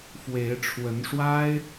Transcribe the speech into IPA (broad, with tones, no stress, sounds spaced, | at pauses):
f w e˨˦ ɪ̯ ʈ͡ʂʰ w ə˨˦ n ʂ w a˦ ɪ̯